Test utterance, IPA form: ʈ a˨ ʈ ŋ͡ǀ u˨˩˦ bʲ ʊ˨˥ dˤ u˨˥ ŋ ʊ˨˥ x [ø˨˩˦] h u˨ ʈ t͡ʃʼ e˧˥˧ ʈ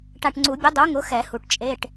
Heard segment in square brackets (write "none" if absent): ɛ˨˩˦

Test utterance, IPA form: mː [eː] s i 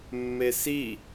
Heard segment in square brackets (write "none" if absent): e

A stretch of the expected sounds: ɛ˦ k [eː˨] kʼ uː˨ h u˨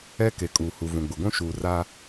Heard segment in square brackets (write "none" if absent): e˨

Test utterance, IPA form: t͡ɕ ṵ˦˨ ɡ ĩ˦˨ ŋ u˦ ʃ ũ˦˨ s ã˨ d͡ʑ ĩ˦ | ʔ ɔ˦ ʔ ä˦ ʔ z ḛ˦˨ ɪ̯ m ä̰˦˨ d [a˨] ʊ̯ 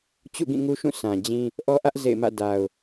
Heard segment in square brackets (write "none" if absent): a˨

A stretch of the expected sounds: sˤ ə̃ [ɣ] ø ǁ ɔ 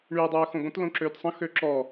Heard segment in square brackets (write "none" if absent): x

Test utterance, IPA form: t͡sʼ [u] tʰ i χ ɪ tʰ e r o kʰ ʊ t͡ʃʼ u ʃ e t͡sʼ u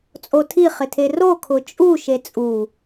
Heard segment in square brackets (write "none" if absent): o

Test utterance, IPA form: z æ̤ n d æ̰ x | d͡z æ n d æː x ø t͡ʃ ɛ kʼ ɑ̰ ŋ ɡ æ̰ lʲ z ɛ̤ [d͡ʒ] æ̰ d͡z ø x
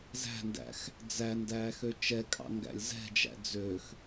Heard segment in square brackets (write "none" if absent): d͡ʒ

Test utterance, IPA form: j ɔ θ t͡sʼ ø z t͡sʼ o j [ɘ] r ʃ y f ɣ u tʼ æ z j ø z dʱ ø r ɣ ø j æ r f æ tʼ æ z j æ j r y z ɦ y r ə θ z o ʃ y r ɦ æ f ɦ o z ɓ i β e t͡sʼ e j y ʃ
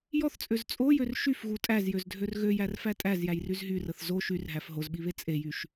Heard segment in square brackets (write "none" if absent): ø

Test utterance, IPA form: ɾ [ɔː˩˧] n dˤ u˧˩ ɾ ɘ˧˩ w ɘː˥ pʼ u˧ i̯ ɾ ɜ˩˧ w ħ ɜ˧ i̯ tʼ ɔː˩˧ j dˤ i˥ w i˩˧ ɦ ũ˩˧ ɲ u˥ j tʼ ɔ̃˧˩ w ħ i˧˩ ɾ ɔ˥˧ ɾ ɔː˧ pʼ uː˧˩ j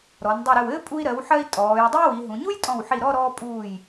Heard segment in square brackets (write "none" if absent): ɔ˩˧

